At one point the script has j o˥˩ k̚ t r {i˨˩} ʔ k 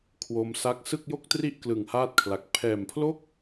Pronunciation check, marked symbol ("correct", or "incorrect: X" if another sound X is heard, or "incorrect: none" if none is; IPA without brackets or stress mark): incorrect: i˥˩